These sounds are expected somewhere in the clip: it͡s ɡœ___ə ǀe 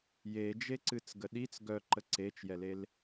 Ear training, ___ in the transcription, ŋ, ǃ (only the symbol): ǃ